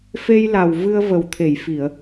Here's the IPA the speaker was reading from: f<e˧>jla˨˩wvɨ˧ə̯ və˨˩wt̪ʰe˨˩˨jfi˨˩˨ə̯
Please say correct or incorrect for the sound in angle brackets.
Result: correct